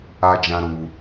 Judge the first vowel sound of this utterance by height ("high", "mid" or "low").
low